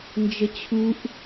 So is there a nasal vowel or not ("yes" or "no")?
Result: no